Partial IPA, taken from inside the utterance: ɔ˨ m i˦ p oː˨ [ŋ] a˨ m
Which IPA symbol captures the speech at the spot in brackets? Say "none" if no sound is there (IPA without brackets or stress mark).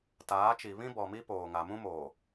ŋ